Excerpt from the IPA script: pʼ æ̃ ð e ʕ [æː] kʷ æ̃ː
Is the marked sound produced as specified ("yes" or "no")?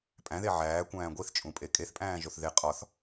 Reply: yes